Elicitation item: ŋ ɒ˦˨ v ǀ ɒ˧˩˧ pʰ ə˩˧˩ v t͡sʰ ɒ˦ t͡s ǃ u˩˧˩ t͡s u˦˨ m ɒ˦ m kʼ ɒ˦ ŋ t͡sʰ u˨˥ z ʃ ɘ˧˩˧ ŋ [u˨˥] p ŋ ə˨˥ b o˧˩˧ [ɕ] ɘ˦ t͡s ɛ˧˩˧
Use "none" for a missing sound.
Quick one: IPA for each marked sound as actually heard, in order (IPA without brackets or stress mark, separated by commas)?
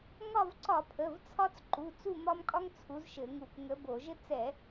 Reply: u˧˩˧, ʒ